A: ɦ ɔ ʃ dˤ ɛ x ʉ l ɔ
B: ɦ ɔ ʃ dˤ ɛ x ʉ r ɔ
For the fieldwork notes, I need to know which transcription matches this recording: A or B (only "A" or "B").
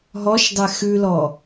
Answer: A